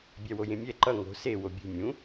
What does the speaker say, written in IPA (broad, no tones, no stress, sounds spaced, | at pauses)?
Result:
bʲ æ w o j ẽ mʲ ɛ ǃ ʌ ŋ o̤ s e w o bʲ ṳ mʲ ũ